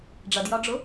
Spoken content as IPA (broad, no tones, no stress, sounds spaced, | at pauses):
ɖ͡ʐ ʌ d j ɒ ɖ͡ʐ ʊ